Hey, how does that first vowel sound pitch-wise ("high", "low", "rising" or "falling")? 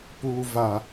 low